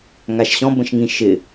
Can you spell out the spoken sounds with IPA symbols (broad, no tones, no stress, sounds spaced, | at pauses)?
ŋ a ʃ ɕ ɔ̃ b ə̃ ʃ ŋ ĩ ʃ ɪ